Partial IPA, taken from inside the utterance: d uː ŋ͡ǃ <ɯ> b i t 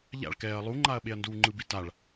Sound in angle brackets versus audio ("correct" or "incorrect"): correct